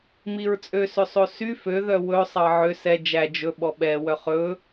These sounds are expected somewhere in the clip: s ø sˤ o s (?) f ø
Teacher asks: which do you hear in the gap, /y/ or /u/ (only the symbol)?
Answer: y